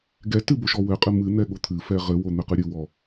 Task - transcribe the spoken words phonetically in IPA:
ɡɛtɨ boʃɔwɘqʼɨ mɨn̪ɛ ɠot̪ʰɨfɛ ʁɘwo n̪ɘqɨɾʲɨwɔ

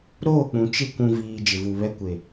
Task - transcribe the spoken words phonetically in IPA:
ɾoː˦˨k͡pũ˨ t͡ʃɪ˦˨ kʷũ˨viː˨ d͡ʒɪ˨vu˨ βɛ˦ kʷe˨

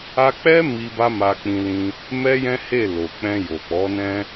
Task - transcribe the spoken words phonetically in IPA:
a˧k͡pɛ˦ mi˧ ba˦ma˧k͡pĩ˧lĩ˧ | mɛ˦jɛ̃˦he˦˨ lo˨k͡pɛ̃˧jo˨k͡pɔ˨˦ nɛ̃˧

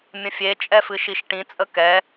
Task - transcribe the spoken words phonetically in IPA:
mʲə̃fʲe t͡ʃʼɛfɨʃiʃʈĩ t͡sʼəkɛ

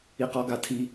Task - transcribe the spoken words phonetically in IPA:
iqɔɡatʰi

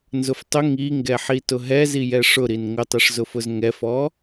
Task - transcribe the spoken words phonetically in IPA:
nzʊftˤʊ ŋiŋɡɛħi tʊɦɛzijɛ ʂʊɾin ŋʊtˤiʂzʊfʊz ŋɛfɔ

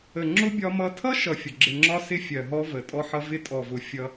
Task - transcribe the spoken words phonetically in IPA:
ə˨ŋ͡ǁʊ˦ bʲɒ˦mʌ˦ tʰʌ˦ʃʌ˨ fʲʊ˨ ɡ͡ǁɪ˨ŋ͡ǁɒ˦ sɪ˦fʲɜ˨ɦɔ˦ və˨tʼɔ˦ħʌ˦ vɪ˦tʼɔ˨vʊ˨ fʲʌ˦

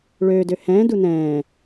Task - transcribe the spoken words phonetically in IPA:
ɭøːdø hɛ̃ːdu nɛ̃ː

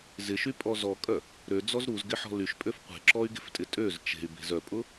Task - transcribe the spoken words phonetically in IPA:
zɪʃypʼɔ zɔkʼœ | ɾød͡zɔz ɾuzɡɪħɔ̤ lyʃpʼøf qʷe̤ǁɔy̯ɡe̤ftʼɪ tʼøz t͡ʃe̤y̯be̤z œpʼʊ

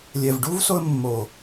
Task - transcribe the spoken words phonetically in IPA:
lʲɛ˨vɖu˦v so˧ə̯ mːo˨

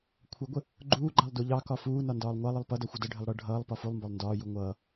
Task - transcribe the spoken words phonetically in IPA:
kʷʰəɡʷə | ɡ͡ǃuːɡ͡ǃɑlˠ duʎɑkɒ fuːnɒ ndɒːlˠŋʷɑlˠɪlˠ pʌdʌ xʷədəɖʱɪlˠ ɽʌ ɖʱʌːlˠ pɒfulˠmbɒlˠ ndɒːju ŋʷʌː

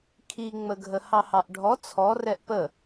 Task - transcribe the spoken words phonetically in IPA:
kʰiŋ͡məɡʱə hɑhɑʔɖʱɔ t͡sʰɔrɛʔ pə

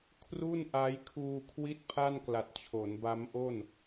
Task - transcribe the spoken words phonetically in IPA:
kʰru˥˩nʔa˦˥j kʰuː˧kʰwi˥˩t̚pʰa˥˩n kla˨˩t̚t͡ɕʰo˩˦nba˦˥mʔo˥˩n

